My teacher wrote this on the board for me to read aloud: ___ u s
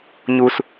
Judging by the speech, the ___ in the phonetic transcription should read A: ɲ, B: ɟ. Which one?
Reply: A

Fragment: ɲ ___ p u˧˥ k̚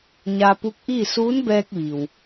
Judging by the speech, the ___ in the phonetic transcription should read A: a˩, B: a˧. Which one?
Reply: B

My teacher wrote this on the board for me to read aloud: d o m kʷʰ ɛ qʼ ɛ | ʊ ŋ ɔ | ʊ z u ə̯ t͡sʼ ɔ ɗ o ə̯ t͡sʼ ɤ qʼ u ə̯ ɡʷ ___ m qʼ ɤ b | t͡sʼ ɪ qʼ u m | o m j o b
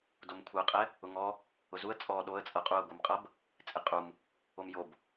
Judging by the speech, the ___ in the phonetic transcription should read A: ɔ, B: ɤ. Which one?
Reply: B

